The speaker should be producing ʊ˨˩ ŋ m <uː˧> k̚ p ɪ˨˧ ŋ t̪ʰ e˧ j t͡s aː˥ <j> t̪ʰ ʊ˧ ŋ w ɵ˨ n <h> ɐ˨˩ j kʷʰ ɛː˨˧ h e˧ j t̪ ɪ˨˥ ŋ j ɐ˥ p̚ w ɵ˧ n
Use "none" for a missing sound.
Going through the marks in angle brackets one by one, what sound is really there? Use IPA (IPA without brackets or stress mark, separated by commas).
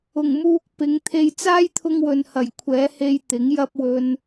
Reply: uː˧, j, h